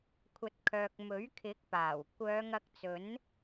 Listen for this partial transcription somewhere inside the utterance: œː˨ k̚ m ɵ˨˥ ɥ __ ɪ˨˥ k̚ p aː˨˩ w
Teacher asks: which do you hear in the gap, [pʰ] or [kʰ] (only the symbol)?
kʰ